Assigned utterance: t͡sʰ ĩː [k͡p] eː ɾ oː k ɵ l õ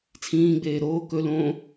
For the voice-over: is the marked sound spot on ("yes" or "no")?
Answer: no